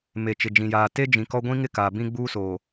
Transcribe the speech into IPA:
m e˨ t͡ʃ ɪ˨ d͡ʒ ĩ˨ j aː˨ t e˦ d͡ʒ ĩ˨ k ɔ˦ ɡʷ ĩ˦ ŋ ɪ˦ k aː˨ b ĩ˦ ɡ͡b uː˦ s oː˨

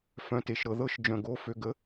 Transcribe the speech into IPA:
f œ̃˩ t e˩ ʃ ɾ ɤ˩ ð ɤ˨˥ ʃ d͡ʒ œ̃˩ ɡ o˩˧˩ f ø˩˧˩ ɡ ə˨˥

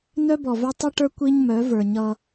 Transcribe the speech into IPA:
n œ˦ b ɔ˨ v œ˦ tˤ ʌ˦ ʈ ə˞˦ kʷ i˦ ɲ m œ˨˦ v ə˞˨ ɲ ʌ˦

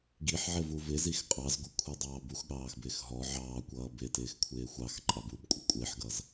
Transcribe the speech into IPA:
ɡ i ħ ʕ ɪ v u v ɪ z i x qʼ ɑ z ɡʷ ʌ kʷʰ ɛ dˤ ɑː b u x ɠ ɑː x b ɪː x ɦ ɔ ʕ ɑː kʷ ʌː b ɪ t ɪː x kʷʰ ɪː xʷ ɑ x ǃʼ ɑ b u b kʷʼ ɪ kʷʼ ɪː ħ ɡ ʌ z

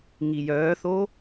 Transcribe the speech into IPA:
ŋ i j œː θ o

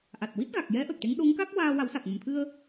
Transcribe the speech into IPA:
ʔ a˨˩ t̚ w i˦˥ t̚ ɣ a˨˩ k̚ j ɛ˧˥ ʔ ə˨˩ k̚ ʈ e˧˥ ŋ ɗ o˧˥ ŋ k a˦˥ k̚ w aː˧ w a˨˩˦ w s a˨˩ k̚ m ə˨˩˨ m t̪ʰ ɨ˧ ə̯

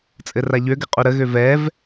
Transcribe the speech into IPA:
t͡sʼ ɘ r a ʎ ø ɡ ɘ qʼ u ɾ ə ɣ ø v ɛ v

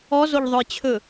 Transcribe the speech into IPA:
ɔ z o ʎ ðˤ ɵ j t͡ɕʰ ɵ

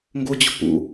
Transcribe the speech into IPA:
ŋ ɡ o d͡ʑ o̤ p ṵ

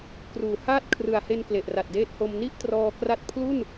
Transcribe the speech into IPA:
k r uː˨˩ h aː˥˩ t̚ kʰ r ɯ˨˩ a̯ h e˧ n k l e˨˩ ʔ r a˨˩ t̚ d eː˦˥ t̚ h o˧ m n i˥˩ ʔ t r ɔː˧ k r a˦˥ t̚ pʰ l u˥˩ n

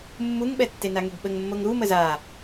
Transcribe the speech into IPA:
mː u ŋ ɓ ɛ tː e n a ŋ e ɡ ɓ ə ŋ mː o ŋ ɾ u m ə z a

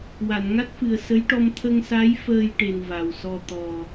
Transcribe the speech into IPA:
w a˨˩˨ n ŋ a˦˥ t̚ f ɨ˨˩ ə̯ s ə˧˥ j ʈ ɔ˧ m t̪ʰ ə˧ ŋ s a˧˥ j f əː˧ j ʈ e˨˩ n v a˨˩ w s ɔ˧ t̪ ɔ˨˩

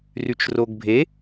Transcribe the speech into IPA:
r y t͡ʃ r o ɡ bʱ e

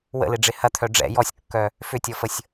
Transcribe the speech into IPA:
w ə̰ l ɪ ɖ͡ʐ ɪ h ɐ t̪ʰ œ ɖ͡ʐ ɛ̰ j ɔ sʲ kː œ | f ʏ tʲ ɔ f ə sʲ

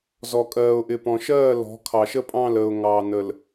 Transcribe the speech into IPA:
z ɔ˨ kʼ ɜː˨ ʊ̯ ʔ ɪ˨ p ɔ̃˨ ʃ ɜː˦˨ l ɔ̤˨˦ kʰ ɑ˨ ʃ ə˦ pʼ ɑ̃˦˨ l əː˨ ʊ̯ ŋ ɑː˨ n ə˨ l

